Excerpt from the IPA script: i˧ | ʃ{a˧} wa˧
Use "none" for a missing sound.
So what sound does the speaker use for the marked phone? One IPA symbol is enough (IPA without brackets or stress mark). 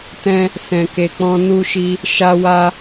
a˧